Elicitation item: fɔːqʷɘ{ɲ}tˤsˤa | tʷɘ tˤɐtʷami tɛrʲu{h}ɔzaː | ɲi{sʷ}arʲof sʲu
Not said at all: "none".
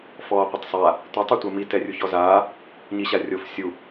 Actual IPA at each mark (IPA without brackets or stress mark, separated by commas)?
none, ç, ɕ